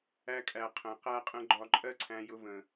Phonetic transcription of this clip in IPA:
æ˧ kʼ æ˨ qʰ ə̃˨ q æ˧ qʼ ə̃˧ ɡ͡ǃ ɒ˧ ǃʼ ɜ˦ ǀʰ æ̃˧ j ʊ˧ v ə̃˨

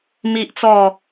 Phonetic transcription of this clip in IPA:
m i˦ ʔ t͡s ɔ˥˧

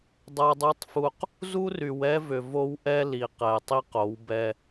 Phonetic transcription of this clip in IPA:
dˤ a˦ dˤ u˦ tˤ f u˦ q | z u˦ r y˨ w ɛ˦ v ʏ˨ v o˦ w ʔ ɛ˦ l i˨ q ɛ˨ tˤ i˦ q o˨˦ w b ɛ˦

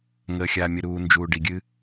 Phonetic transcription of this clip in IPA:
ŋ əː˨ xʲ aː˨ mʲ ə˨ ɾ uː˨ n d͡ʒ uː˨ ɖ i˨ ɡʲ ɨ˦

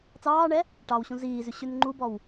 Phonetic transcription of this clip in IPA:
t͡s ɑː ɳ ɛ | ʈ ɑ w ɕ ũ z iː z ʉ ɕ ʉ n ŋ͡ǃ u b ɔ w

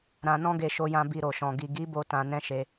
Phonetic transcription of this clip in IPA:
ɾ ã˧ n ɔ̃˦ ɡ e˧ ʃ o˧ j ã˧ b i˧ ɾ o˨ ʃ ɔ̃˨ ɡ i˨ ɡ i˨˦ b o˧ t ã˧ n ɛ̃˦ ʃ e˧

